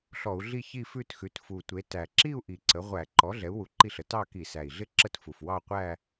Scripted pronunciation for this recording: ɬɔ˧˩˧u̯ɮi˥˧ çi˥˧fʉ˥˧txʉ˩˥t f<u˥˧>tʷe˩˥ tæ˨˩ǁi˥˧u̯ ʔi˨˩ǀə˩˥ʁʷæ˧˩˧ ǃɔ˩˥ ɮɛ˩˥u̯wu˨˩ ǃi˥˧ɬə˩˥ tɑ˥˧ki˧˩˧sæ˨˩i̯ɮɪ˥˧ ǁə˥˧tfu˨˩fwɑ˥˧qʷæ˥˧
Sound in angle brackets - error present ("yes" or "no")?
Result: yes